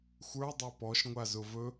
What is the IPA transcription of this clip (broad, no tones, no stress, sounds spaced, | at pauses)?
xʷ ə˞ dˤ ɛ p ɔ ʃ ŋʷ a z ʊ v ɵ